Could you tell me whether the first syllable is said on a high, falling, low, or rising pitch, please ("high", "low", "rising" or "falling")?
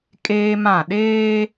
high